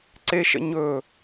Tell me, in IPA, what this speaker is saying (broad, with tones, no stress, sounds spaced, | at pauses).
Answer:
ǀ e˦ ʃ ə̰˦ ɲ ɵ˦˨